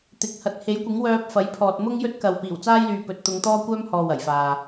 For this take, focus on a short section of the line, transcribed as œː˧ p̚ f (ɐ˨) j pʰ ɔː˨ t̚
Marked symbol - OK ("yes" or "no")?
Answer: no